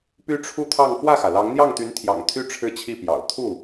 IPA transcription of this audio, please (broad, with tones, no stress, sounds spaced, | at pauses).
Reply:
p y˥ ʈ͡ʂʰ u˥˧ t̪ʰ ɑ˥˧ ŋ f w ä˥˩ x ä˩ l ɑ˧˥ ŋ n̪ j ɑ˥˩ ŋ t̪ y˧˥ n t̪ʰ j ɑ̰˨˩ ŋ t̪ʰ y˥˧ ʈ͡ʂʰ ɻ̩˥˧ t͡ɕʰ i˥˩ p j ɑ̰˨˩ ʊ̯ t̪ʰ u˥˩